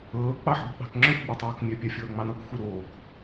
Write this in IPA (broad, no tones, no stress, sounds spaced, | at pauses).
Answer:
ɤː k͡p ɑ ħ ɠ o̤ ɓ ɑ̤ k ŋ͡ǁ œ xʷ ɡ͡b œ tˤ oː k mʲ œ pʲ a fʲ ɤː ŋ͡m ɑ n ɤ k xʷ e ɾ oː k